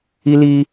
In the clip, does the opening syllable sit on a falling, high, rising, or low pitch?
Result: high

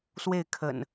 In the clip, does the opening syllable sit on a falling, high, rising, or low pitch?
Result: falling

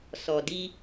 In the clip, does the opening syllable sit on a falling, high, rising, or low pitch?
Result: low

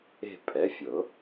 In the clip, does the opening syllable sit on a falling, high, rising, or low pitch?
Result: falling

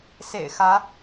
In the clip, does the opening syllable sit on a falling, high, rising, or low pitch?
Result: low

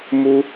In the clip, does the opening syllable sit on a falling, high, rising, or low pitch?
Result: high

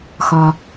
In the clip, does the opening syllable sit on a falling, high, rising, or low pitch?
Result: low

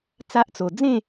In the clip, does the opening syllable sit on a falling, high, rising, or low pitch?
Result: high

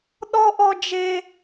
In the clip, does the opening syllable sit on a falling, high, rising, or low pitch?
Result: high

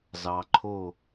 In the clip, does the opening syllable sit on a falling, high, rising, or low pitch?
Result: low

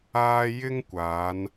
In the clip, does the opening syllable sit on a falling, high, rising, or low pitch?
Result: high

